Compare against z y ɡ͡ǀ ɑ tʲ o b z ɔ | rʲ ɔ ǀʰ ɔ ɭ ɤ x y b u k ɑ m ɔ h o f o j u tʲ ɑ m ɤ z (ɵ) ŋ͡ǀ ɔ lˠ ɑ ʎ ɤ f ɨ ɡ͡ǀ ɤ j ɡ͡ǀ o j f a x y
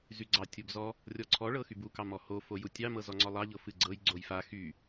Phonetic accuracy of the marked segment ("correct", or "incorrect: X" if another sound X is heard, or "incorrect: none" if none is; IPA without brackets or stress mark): incorrect: ɔ